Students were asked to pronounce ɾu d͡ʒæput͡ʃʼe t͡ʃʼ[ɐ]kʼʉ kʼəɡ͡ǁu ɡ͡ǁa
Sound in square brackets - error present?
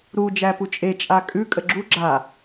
yes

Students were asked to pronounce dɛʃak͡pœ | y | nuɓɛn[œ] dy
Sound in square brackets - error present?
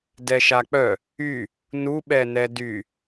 yes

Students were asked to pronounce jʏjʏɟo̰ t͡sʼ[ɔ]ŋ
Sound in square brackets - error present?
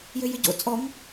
no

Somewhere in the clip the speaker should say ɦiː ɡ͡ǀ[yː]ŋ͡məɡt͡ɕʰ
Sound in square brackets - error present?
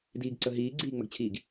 yes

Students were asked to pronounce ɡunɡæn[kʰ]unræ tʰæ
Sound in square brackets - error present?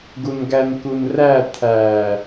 yes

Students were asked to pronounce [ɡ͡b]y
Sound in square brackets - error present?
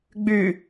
no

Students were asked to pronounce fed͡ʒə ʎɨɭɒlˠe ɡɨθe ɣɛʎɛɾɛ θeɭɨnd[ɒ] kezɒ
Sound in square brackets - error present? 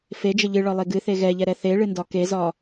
no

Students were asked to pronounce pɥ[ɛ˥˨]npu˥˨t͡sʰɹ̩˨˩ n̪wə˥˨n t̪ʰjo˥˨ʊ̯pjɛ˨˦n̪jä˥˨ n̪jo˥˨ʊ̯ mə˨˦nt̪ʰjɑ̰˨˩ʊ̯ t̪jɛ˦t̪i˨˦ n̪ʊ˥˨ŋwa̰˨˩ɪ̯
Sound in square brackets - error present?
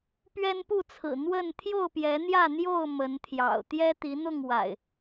yes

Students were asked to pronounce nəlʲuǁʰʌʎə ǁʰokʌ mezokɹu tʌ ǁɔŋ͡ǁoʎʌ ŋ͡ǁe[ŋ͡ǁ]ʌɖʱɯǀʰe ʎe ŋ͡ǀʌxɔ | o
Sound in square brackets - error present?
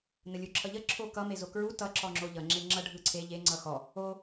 no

